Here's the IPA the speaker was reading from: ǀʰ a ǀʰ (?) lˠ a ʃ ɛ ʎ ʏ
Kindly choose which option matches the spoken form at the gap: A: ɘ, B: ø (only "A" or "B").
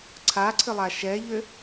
A